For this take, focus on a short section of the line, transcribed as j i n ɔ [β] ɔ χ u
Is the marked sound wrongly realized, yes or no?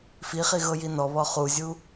no